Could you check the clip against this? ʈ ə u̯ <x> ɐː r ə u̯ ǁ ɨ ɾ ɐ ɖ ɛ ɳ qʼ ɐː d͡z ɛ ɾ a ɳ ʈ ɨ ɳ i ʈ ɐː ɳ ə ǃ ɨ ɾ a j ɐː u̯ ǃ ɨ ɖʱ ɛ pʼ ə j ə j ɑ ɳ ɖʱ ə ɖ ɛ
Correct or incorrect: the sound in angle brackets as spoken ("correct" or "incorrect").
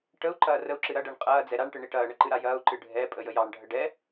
incorrect